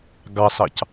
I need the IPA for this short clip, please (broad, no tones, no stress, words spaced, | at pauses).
ɡɑsɑc